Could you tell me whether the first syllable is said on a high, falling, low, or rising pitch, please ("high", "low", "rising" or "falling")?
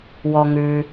low